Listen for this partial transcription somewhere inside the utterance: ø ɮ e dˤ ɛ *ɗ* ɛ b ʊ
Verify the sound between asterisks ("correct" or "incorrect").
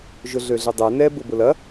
incorrect